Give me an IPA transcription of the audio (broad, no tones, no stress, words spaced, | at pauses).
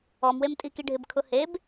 ɔmwemtʼiki ɖʱɪbkʰʊheb